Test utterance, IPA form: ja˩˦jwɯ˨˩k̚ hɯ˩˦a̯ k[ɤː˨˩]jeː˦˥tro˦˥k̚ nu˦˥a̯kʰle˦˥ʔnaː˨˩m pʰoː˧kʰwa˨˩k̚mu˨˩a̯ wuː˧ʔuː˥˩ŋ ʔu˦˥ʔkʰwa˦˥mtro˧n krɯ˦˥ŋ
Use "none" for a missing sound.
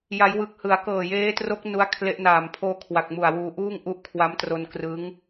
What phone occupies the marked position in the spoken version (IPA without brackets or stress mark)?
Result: ɤː˨˩